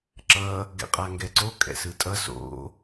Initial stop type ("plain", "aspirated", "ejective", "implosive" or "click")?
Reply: click